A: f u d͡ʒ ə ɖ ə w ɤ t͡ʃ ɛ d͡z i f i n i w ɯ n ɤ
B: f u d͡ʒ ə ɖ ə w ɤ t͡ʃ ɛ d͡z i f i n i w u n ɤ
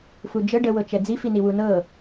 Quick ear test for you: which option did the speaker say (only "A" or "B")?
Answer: B